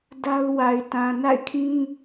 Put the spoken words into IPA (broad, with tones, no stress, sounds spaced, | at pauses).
d a˦ ʊ̯ w a˨ ɪ̯ t ã˨ n a̰˦˨ ɪ̯ kʰ ĩ˦